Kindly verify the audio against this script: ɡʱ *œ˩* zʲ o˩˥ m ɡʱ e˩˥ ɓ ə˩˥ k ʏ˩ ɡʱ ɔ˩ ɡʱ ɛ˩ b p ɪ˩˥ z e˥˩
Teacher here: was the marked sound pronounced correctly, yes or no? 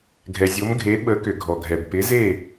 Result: no